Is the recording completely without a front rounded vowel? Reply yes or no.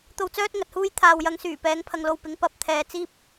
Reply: no